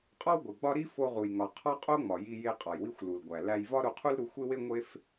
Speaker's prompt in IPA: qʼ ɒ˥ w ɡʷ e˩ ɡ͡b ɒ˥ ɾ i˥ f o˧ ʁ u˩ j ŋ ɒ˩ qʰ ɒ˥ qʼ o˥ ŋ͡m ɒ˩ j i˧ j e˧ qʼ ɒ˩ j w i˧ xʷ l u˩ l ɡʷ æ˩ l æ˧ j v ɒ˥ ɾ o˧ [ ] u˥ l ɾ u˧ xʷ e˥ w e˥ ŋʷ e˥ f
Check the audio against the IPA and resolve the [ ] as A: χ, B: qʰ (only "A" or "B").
B